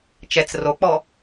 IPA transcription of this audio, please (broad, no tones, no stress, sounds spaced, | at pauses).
t͡ʃ ɛ t͡s r o k͡p ɔ